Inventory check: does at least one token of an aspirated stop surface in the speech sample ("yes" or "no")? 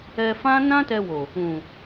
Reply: no